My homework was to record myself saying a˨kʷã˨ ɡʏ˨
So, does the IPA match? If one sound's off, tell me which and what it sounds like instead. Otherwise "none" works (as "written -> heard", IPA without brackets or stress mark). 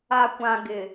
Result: ʏ˨ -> ɪ˨